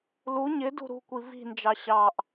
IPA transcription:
l u ɲ ɪ d ṳ ɾ ṳ kʷ i v i̤ n d͡ʒ ɑ ɕ ɑ ʔ

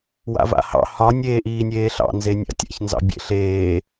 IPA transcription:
w a̰ v a̰ h ɑ̰ h ɒ nʲ eː ʔ iː nʲ eː ɬ ɑ̰ n z e nʲ a̰ tʲ a̰ ç n z ɑ̰ bʲ ḛ ɬ eː

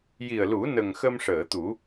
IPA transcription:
j i˨˩ ə̯ l u˨˩˦ n ə˨˩ ŋ x ə˧ m ʂ əː˨˩˨ t̪ u˨˩˦

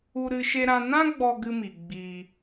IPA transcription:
u˦ ɾ ɨ˦ ʃ e˦ ɾ ã˦ n ã˦ ɡ͡b ɔ˦ ɡ ɨ˦ m i˨ ɡ͡b iː˦

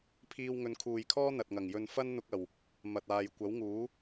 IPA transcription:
pʰ iː˧ w ŋ ɵ˨˧ n kʰ uː˨ j kʰ ɔː˥ n̪ ɐ˨ t̚ ŋ ɐ˨˩ ŋ j ɵ˧ n f ɐ˥ n n̪ ʊ˧ k̚ ɐ˨˩ w | m ɐ˨ t̚ aː˨ j kʷ ɐ˨˥ w ŋ uː˨˥

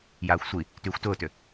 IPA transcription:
j aː xʷ sʷ i | t yː xʷ t ʊː t ʏ

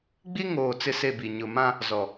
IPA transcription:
ɡ͡b i˦ ŋ oː˨ t͡s ɪ˦ s e˦˨ b i˨ ɲ ʊ˨ m ã˦ | z ɔ˨

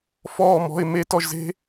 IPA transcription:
f ɔː˥˨ m ɔ̤˧˥˧ ɪ̯ m e˦˥ t ɔ˥˨ ʒ z e̤˦˥

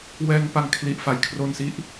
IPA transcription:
w ɛː˧ ŋ p a˧ ŋ kʰ l i˨˩ ʔ f a˩˦ j kʰ r o˧ n s i˥˩ ʔ

